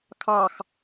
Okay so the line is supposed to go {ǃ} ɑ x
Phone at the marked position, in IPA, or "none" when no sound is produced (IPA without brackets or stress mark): kʰ